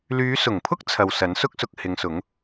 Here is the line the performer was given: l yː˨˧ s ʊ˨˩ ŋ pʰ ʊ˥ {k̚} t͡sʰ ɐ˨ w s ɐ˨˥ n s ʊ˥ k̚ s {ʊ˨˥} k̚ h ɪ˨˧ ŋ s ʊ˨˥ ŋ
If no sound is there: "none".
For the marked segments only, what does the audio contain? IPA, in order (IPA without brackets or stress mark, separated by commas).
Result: k̚, ʊ˧